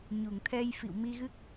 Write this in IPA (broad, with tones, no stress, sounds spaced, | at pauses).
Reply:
ɲ u˧˩ ŋ t̪ʰ ɛ˧ j f ḭ˧˨ w m i˧ ɣ ɨ˦˥ k̚